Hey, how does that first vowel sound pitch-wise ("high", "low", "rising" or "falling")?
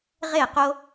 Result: falling